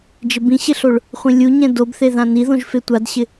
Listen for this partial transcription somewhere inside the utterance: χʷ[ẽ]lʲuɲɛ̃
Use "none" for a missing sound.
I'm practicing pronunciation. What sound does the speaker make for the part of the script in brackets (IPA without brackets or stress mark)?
ĩ